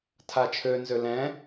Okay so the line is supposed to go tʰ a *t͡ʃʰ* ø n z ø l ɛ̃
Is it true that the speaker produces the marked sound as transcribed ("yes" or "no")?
yes